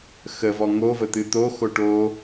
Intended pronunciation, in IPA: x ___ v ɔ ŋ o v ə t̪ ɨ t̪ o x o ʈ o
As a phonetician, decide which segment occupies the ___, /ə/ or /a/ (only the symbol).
ə